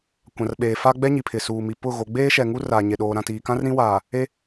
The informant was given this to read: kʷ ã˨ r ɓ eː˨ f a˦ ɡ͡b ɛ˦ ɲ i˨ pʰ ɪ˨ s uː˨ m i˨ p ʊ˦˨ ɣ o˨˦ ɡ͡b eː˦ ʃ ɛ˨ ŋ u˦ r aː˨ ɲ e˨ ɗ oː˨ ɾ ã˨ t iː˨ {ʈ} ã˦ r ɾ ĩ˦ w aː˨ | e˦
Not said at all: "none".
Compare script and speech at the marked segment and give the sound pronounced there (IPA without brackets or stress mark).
k